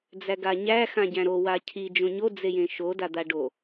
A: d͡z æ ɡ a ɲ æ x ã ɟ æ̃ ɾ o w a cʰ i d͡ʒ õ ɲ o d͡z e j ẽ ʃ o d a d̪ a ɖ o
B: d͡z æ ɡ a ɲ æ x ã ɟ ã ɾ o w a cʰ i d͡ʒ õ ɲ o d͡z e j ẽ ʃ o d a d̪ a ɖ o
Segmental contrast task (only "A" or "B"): A